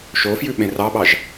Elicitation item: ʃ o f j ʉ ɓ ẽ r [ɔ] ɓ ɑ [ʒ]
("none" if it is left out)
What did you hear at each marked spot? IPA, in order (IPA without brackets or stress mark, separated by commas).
ɑ, ʒ